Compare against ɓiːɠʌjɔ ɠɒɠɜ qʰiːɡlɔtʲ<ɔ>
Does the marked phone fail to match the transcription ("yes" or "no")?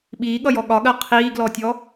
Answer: no